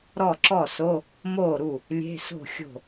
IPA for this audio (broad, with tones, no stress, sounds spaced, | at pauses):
ɾ ɔ˥˩ ǁ ɔ˥˩ s o˧˥˧ | m oː˥˩ ɾ u˥˩ | lʲ e̤˧˥˧ s o̤˥˩ xʲ o̤˥˩